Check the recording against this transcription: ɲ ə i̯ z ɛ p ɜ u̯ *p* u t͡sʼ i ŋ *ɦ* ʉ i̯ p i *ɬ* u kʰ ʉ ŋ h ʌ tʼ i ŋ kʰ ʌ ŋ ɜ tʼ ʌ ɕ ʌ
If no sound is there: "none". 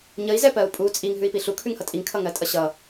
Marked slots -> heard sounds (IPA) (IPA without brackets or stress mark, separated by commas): pʼ, ɦ, ɬ